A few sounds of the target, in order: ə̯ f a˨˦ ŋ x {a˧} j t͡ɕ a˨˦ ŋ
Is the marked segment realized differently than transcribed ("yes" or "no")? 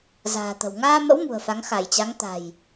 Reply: yes